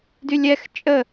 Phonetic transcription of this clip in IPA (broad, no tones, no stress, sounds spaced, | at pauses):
d y lʲ ɛ x t͡ʃʼ ə